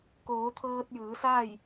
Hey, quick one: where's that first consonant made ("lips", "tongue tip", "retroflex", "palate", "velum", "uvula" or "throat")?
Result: velum